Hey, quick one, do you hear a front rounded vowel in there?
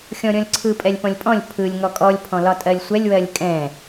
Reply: no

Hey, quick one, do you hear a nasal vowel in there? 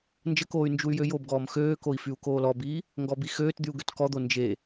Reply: no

